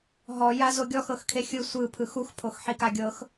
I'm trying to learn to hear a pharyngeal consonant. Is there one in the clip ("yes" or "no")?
yes